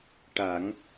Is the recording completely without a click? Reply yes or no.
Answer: yes